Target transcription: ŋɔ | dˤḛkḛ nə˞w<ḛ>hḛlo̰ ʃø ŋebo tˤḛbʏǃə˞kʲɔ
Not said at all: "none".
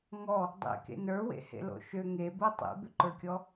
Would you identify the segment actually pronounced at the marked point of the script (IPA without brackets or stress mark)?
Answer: ḛ